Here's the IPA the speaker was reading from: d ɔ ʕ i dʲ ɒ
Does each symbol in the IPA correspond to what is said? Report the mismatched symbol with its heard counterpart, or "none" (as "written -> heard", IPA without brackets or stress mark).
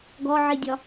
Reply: d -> ɡ